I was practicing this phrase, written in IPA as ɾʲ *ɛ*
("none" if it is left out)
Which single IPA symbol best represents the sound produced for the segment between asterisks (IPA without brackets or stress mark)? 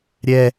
ɛ